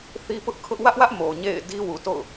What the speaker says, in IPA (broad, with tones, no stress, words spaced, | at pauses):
θi˦pʊ˦ʔkʰʊ˦ʔ wä˦ʔwä˦ʔ mo˨ɲḛ˦˨ɪ̯ di˦wu˨to̰˦˨ʊ̯